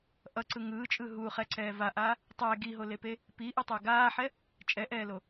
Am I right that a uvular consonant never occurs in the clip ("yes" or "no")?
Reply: no